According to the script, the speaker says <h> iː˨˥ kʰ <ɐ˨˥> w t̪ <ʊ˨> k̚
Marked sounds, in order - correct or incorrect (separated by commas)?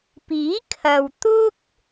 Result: incorrect, incorrect, incorrect